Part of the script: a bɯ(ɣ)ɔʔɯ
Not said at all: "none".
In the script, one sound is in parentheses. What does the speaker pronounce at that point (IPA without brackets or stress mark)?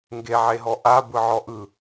ʕ